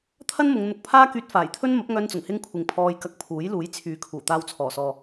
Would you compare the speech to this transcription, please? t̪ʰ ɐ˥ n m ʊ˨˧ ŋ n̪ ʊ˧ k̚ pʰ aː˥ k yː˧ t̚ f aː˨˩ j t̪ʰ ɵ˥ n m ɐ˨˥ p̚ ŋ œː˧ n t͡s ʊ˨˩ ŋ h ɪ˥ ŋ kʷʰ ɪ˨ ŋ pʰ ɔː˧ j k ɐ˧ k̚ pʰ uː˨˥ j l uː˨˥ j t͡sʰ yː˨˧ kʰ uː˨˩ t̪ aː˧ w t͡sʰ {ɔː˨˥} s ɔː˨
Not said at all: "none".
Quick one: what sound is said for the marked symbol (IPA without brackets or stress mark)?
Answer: ɔː˨˩